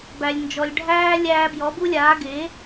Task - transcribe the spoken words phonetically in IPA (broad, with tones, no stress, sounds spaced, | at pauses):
b æ˨ lʲ n d͡ʒ ɔ˨ lʲ ɖʱ æː˦ lʲ æː˧ b j ɔ˨˦ b u˦ lʲ aː˨˦ ɡ e˨˦